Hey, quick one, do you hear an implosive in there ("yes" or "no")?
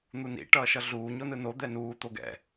no